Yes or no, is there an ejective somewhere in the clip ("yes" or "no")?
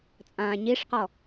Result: yes